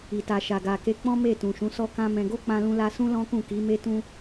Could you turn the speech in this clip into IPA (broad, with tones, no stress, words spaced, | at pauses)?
i˨ta˨ ʃa˨ɡa˨ke˧ k͡pɔ̃˦ me˦˨tũ˨ ʃũ˨˦sɔ˦kã˦ mɛ̃˧ ɡo˦ k͡pã˧lũ˧la˧sũ˦ lɔ̃˦kũ˦˨ki˨˦ me˦ tũ˦